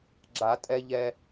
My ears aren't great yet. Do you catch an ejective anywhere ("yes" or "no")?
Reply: yes